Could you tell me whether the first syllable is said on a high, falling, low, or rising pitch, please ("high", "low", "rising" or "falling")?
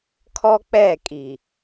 high